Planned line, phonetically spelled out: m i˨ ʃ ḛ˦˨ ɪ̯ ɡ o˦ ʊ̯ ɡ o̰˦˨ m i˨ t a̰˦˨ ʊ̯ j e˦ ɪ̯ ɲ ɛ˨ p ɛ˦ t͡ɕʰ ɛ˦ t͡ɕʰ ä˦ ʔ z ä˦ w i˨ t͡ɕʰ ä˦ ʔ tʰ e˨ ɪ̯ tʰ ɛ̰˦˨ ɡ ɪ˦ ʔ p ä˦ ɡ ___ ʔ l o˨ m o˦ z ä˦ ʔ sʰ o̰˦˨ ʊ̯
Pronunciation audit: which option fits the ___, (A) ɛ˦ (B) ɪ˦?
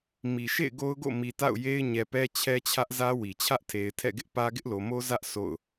B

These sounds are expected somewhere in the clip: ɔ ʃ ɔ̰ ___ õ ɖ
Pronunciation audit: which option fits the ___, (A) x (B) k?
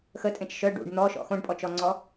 A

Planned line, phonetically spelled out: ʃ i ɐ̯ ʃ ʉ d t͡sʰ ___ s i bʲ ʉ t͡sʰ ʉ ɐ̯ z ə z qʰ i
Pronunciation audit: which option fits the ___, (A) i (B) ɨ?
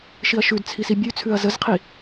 A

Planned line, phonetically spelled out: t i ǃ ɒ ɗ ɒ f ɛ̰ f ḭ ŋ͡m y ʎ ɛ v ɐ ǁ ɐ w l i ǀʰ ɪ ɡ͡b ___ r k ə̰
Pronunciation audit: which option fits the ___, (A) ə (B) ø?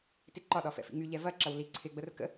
A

